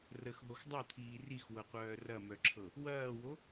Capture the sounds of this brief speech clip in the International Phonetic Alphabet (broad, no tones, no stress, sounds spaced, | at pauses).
r ə x ɦ o x dˤ ɤ t̪ʰ iː r i x w ɤ qʷ œː r ɐ m œ ǁʰ ɤ | w ɐː w o